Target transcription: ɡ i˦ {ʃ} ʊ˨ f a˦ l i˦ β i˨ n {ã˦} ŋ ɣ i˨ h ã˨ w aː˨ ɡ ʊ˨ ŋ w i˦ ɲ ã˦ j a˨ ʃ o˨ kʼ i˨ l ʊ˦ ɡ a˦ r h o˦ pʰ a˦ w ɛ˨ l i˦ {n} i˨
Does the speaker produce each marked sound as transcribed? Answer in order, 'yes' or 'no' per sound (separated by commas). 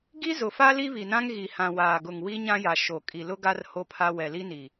no, yes, yes